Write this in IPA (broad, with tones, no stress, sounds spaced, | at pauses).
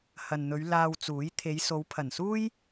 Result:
h ɐ˨ n n̪ ɵ˨˧ ɥ l aː˧ w t͡s uː˨˥ j t̪ʰ e˨˧ j s o˨˧ w pʰ ɐ˨˩ n s uː˥ j